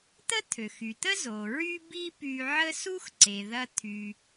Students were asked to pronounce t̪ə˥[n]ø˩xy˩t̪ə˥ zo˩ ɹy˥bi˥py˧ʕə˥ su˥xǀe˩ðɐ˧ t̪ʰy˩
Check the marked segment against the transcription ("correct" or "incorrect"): incorrect